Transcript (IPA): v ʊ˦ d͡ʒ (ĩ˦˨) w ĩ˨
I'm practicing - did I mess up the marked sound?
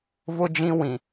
yes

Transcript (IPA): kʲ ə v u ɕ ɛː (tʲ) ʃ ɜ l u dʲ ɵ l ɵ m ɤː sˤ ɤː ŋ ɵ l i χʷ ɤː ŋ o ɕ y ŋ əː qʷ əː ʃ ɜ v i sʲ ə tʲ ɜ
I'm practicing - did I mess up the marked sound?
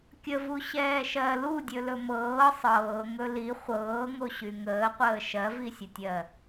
yes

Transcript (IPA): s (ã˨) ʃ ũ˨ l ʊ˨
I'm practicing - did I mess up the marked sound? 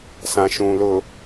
no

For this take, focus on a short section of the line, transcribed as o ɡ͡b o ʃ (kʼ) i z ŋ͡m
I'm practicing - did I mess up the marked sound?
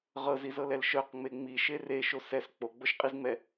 yes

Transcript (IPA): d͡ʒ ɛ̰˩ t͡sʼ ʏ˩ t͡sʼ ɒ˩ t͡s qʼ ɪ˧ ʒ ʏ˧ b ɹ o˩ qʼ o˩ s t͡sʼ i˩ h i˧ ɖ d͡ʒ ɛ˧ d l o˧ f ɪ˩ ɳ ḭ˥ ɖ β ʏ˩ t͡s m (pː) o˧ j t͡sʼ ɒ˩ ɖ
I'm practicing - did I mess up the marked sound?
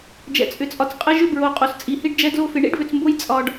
yes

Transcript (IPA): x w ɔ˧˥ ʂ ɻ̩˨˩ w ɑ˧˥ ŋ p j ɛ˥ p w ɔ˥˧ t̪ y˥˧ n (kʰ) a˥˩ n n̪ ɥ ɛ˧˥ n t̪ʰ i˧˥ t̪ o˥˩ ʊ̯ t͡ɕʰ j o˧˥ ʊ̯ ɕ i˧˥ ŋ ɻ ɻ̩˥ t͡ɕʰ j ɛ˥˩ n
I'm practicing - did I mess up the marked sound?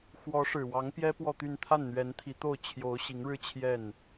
yes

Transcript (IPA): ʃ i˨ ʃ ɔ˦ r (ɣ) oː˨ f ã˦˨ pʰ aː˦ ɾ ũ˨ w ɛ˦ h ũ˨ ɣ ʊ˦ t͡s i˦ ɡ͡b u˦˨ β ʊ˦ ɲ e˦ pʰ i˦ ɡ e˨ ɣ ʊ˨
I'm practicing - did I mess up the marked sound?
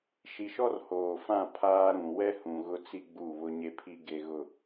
yes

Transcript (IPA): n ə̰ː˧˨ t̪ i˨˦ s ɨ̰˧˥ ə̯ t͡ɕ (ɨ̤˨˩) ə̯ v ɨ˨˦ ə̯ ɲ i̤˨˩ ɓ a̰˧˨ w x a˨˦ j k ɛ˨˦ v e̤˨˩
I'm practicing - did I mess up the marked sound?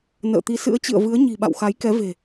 yes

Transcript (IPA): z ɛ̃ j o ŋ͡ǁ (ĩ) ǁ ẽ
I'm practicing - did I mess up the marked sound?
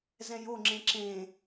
yes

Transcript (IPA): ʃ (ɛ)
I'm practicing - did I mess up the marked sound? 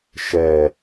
no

